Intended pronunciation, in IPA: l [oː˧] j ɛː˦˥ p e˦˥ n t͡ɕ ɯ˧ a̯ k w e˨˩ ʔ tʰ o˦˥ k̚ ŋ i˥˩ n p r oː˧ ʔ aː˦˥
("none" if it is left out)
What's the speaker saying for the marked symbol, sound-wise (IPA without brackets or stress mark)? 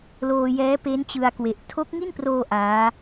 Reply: oː˧